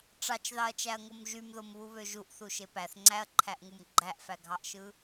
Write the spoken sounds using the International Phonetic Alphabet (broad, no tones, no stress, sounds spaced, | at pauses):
ʈ͡ʂ ɑ t͡ʃ ð ɑ ɐ̯ t͡ʃ æ ɐ̯ ŋ o m ʒ y m ð o m β u β ø ʒ u ʔ θ u ʃ e p æ θ ŋ͡ǀ æ ɐ̯ ǃʰ æ ʔ ŋ u m ɡ͡ǃ æ ʔ f æ ɡʱ ɑ ʔ ʃ ɯ